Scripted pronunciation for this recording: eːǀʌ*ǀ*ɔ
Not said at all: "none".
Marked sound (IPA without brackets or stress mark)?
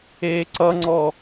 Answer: ŋ͡ǀ